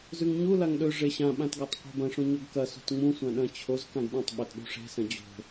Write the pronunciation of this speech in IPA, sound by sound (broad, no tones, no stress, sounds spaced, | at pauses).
z ʉ ŋ ɲ u l a ŋ ɗ ɵ ʐ e ɕ ã ɓ ã t ɡ a tˤ qʷ e̤ b ɐ̃ ʂ ũ ɲ o ɡ k ɐ s o̤ t ŋ͡m ũ sʷ ã ɗ ɐ̃ t͡ɕʰ o z k ã ɡ ɗ ĩ tˤ ɓ ɐ t ɗ ṳ ʂ e̤ s ɐ̃ d͡ʑ o̤